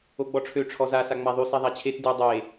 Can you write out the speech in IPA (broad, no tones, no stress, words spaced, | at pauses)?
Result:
oɡ͡bɔʈ͡ʂʰø ʈ͡ʂʰɔza saŋ͡maðˤy siðˤat͡ɕʰet dy dˤe